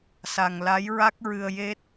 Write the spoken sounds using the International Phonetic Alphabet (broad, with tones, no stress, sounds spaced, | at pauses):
s a˧ ŋ l a˧˥ j ɹ a˦˥ k̚ ɹ ɨ˧ ə̯ j e˦˥ t̚